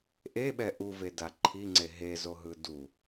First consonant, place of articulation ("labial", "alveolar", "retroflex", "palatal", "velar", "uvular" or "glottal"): glottal